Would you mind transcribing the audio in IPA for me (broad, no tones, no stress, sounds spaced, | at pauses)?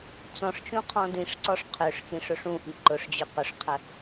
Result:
t͡s ɔ̃ ʂ t͡ʃ ũ qʰ ɔ̃ d ĩ ʂ ǀ ɔ ʂ qʰ ø ʂ x ĩ ʂ ɵ ʂ ũ ʔ i ǃ ʊ ʂ d͡ʑ ɵ q ʊ ʂ qʰ ə